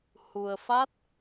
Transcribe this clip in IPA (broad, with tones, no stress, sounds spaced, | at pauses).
h u˧ ə̯ f a˦˥ t̚